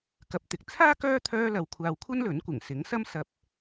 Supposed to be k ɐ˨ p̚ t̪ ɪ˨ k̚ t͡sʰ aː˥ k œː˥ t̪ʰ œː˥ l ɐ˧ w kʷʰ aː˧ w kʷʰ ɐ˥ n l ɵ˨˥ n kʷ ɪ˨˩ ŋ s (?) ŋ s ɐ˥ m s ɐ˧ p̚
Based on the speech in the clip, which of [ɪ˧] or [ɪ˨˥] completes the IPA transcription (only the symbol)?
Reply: ɪ˨˥